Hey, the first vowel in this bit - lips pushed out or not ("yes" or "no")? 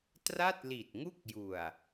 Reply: no